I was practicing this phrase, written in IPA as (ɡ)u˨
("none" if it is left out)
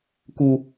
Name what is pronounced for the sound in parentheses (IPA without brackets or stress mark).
k